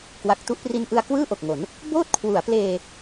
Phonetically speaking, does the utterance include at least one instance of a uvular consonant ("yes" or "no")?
no